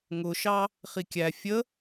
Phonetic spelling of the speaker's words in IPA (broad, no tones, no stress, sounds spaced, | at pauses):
ŋ ʊ ʃ ɑ | χ i kʲ æ fʲ ə